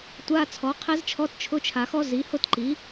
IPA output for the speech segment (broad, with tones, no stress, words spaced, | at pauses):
tʷa˧˥˧t͡sʰɔ˩˥qʰɛ˦˥zt͡ʃʰɔ˧˥˧t t͡ʃʰʊ˧˥˧t͡ʃʰa˨xɔ˦˥ zi˩˥hʊ˥˨tǃi˩˥